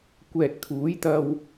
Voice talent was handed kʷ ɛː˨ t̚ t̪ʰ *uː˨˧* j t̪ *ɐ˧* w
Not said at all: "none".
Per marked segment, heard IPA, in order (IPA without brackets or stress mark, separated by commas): uː˨˥, ɐ˧